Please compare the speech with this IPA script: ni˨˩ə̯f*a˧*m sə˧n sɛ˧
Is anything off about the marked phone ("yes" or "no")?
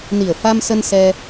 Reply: no